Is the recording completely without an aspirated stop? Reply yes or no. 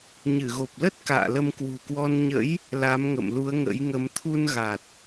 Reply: no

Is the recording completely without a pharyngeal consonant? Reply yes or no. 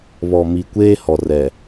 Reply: yes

